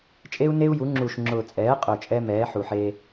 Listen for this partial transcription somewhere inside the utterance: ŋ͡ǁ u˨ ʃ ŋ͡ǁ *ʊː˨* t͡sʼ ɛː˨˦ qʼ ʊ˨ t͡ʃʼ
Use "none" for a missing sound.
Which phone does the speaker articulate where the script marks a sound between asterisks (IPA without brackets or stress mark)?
ʊː˨